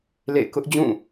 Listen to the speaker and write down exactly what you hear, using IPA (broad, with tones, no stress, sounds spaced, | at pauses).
l ḛ˦˨ ɪ̯ k ʊ˦ ʔ d͡ʑ ũ˦˨